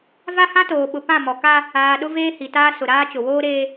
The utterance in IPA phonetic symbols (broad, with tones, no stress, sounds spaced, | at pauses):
v a˦ h ã˦ t oː˨ ɓ ʊ˨ p ã˦˨ m ɔ˨ k a˦ | aː˨ ɗ ʊ˦ v eː˦ h i˨ t aː˦ s ʊ˨ ɾ aː˦ t͡ʃ ʊ˨ w oː˦ ɾ eː˦